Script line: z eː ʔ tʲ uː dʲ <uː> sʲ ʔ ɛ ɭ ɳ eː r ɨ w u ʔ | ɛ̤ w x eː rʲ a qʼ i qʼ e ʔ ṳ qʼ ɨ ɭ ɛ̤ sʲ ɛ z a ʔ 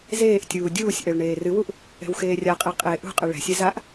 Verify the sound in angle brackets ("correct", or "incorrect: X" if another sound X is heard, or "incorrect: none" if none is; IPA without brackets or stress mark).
correct